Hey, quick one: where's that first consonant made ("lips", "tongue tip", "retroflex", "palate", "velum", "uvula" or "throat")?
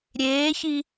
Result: tongue tip